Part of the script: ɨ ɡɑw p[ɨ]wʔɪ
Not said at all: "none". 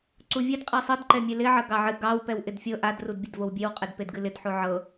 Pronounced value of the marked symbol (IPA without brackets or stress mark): ɛ